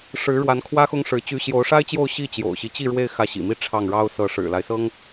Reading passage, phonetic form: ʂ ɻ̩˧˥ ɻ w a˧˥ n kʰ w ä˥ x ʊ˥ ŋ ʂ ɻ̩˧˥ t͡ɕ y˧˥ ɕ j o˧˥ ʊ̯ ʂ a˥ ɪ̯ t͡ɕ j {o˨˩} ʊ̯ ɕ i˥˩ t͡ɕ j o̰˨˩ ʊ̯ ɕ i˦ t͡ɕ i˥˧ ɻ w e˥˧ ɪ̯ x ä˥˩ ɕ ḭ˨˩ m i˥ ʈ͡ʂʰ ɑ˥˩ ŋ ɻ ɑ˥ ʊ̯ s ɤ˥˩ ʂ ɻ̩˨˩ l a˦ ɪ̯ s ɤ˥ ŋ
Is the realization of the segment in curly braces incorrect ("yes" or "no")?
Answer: yes